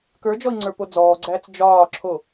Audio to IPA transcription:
k ə˞ d͡ʒ ɔ i̯ ŋ͡ǀ ə˞ p o d͡z ɔː ɡ͡ǀ æː t͡s d͡ʒ ɒː ǁʰ o

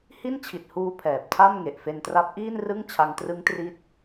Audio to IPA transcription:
h i˥˩ n t͡ɕʰ i˨˩ t̚ h uː˧ pʰ ɛː˨˩ p̚ tʰ a˥˩ m ŋ e˨˩ ʔ f e˧ n t r a˦˥ p̚ ʔ iː˥˩ n r ɯ˥˩ ŋ t͡ɕʰ a˧ ŋ t r ɯ˦˥ ŋ t r i˦˥ t̚

